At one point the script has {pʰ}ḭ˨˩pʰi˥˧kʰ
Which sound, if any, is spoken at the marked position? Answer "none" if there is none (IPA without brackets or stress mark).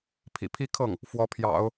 pʰ